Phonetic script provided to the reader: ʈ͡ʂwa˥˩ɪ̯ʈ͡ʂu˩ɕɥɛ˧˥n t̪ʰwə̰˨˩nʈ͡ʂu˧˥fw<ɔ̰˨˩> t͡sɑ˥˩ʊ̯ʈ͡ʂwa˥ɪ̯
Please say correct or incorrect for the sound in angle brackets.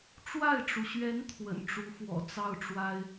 correct